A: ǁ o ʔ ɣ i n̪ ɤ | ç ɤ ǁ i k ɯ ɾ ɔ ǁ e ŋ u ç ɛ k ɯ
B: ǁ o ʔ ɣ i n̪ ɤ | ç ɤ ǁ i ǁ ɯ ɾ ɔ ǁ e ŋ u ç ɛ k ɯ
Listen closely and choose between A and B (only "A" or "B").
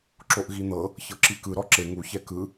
A